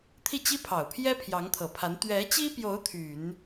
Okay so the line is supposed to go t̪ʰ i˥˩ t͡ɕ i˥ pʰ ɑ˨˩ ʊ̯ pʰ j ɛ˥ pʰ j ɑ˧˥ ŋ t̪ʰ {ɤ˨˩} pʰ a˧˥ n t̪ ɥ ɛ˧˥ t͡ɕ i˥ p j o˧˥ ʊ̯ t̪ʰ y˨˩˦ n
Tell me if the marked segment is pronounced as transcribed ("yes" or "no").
yes